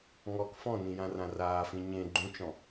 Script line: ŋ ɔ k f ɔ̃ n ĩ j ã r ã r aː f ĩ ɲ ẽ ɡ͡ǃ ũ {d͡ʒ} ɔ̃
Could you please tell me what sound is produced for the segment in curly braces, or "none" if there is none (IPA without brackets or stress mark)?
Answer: t͡ʃ